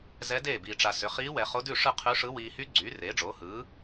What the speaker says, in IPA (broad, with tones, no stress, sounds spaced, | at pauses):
z ɛ˧˥ d eː˥˩ b iː˨ ʈ͡ʂ a˨ s ʏ˩˥ χ iː˧˥ w ɛ˨ χ o˧˥ d ʉ˥˩ ʂ ɯ˥˩ qʰ ʉ˧˥ ʂ ɯ˧˥ w iː˨ h y˧˥ ɡ͡ǀ yː˩˥ r eː˩˥ ɖ͡ʐ oː˩˥ h ɯː˩˥